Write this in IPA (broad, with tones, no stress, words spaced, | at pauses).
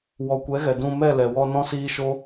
wɔ˨kʷɛ˨˦ɣɛ˨ dũ˧ mɛ˦˨lɛ˨wɔ˧ nɔ̃˦siː˦ ʃo˦